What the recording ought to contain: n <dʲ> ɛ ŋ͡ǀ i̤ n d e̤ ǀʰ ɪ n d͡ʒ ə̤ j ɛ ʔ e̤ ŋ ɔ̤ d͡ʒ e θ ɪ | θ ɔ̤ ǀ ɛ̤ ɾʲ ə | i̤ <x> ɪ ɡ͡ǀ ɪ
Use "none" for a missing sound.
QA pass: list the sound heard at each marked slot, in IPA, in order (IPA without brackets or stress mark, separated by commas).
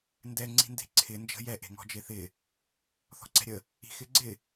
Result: d, x